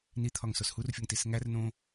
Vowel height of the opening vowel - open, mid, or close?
close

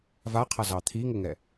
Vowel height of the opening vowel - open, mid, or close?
open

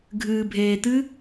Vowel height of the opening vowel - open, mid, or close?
close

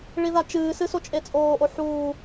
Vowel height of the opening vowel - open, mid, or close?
close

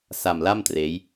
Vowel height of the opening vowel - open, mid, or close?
open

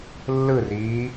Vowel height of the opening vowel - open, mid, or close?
close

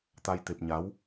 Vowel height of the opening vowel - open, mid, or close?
open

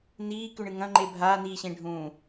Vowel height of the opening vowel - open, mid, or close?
close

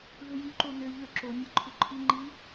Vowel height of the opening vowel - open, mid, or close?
mid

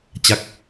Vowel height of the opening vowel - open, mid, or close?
open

